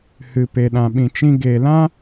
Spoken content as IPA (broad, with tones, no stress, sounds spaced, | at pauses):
h ɨ˨ p e˨ ɗ ã˨ ɓ ĩ˨ t͡ʃ ĩ˧ ɡ e˨ l ã˦